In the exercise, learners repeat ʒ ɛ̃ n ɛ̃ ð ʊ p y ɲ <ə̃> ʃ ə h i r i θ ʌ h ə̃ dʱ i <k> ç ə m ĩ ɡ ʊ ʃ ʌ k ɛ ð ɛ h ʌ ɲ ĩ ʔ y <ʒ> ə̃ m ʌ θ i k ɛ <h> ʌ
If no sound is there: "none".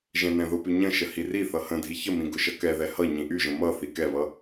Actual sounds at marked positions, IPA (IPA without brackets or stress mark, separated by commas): ə̃, none, ʒ, β